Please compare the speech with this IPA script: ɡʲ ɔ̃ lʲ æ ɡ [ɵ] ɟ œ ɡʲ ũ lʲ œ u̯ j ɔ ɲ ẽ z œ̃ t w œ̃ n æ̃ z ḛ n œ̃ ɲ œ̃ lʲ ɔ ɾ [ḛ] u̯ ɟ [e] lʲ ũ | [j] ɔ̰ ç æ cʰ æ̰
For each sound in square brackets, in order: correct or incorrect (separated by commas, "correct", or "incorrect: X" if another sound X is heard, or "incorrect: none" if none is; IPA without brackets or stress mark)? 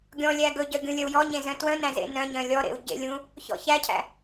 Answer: correct, correct, incorrect: ḛ, incorrect: ç